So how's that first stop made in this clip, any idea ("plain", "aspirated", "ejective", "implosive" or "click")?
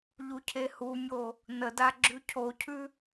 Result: aspirated